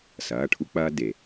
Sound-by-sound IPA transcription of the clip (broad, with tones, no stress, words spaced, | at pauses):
sɐː˩˧˩ʈʰu˦k͡pɐː˦ de˩